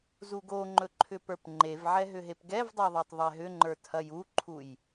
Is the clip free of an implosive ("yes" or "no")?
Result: yes